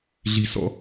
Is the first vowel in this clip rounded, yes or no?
no